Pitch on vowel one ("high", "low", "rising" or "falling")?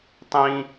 high